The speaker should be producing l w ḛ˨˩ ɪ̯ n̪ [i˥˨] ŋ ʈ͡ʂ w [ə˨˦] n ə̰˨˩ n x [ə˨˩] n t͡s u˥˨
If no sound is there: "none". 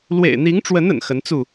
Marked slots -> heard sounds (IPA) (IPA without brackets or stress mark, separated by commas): i˨˦, ə˨˦, ə˨˦